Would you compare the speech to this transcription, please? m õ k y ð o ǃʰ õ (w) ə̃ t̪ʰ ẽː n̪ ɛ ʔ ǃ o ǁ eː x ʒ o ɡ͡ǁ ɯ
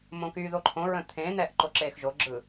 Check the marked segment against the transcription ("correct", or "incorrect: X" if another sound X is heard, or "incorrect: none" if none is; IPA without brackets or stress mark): incorrect: ɹ